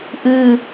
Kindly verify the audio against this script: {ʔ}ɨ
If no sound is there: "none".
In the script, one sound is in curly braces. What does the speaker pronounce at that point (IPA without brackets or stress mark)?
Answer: ʔ